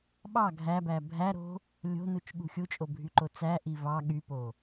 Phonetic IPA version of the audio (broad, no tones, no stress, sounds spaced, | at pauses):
ɓ ɑ ɡʱ æ b æ bʱ æ ɾ o̤ | lʲ o̤ n u t͡ʃ ɠ ṳ xʲ u t͡ʃʼ o bʱ y ǃ o t͡s æ ʔ i v ɑ ɠ y p o